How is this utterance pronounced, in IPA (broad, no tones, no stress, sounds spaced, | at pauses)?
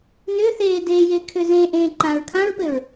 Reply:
n ʏː θ eː d eː j e kʰ ʏ z ẽ ʔ ẽː ǃ ãː ɹ kʰ ã ɹ p ɘ ɹ